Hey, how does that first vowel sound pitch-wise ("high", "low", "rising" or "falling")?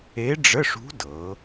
rising